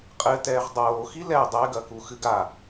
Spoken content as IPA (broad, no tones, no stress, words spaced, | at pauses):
qʼɘtɛːʁ dˤoːxi lɛ dˤɛɡɐku xɨɡa